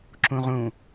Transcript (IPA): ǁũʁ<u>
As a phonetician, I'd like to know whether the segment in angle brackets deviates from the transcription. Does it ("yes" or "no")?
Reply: yes